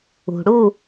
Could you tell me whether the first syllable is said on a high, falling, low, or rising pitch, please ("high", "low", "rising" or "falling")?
low